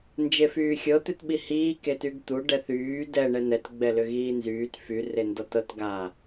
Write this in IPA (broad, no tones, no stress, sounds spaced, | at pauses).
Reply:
n d͡ʒ e f yː xʲ ɤ t̪ ʏ t ɓ i h iː k e t y ɡ t̪ u ɖ ɛ θ yː d ɛ ɳ ɛ n ɛ t ɡ͡b ɛ l ʏ ɣ iː n z yː t f y r e n d ɔ t ɤ t ɡ a